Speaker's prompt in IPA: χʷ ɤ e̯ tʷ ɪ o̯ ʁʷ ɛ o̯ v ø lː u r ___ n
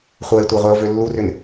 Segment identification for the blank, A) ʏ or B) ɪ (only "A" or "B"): A